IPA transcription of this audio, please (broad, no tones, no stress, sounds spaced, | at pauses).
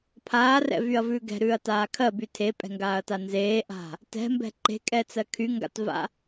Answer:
pʰ aː r ɛ̰ v y ɐ̯ v ʉː ɡ ɛ̤ ɾ ʉː ɐ̯ t aː kʰ ɜ b y tʰ e pʼ ɛ̤ ŋ ɡ aː ɐ̯ t a n z eː ʔ a̤ | t ɛ̤ m b ɛ̤ ǃ e̤ kʼ ɛ t͡s ɜ kʰ y ŋ ɡ a̰ t v a̰